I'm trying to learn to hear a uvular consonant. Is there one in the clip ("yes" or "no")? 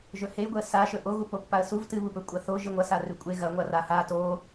no